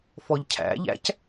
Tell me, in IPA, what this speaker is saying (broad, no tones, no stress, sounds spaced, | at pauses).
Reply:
f ɔ ʎ cʰ æ̰ ʎ æ̰ c